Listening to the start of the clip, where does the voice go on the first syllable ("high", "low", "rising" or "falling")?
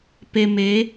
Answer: low